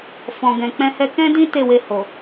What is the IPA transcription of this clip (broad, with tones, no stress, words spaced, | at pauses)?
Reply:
fɔ̃˨ɡɛ̃˨ k͡pɛ̃˧ hɛ˦ kɛ̃˦dĩ˦ te˦˨we˧ ho˨